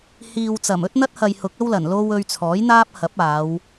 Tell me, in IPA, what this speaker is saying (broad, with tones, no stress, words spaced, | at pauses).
hiː˨wt͡sɐ˨˩m ɵ˥t̚n̪ɐ˥t̚hɐ˨j hʊ˨˥k̚ɐ˥wlɐ˨˩n lo˧w ɵ˧ɥt͡sʰɔː˨˥jn̪aː˥p̚ hɐ˨˥p̚aː˨˧w